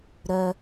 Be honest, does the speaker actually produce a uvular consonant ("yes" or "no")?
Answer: no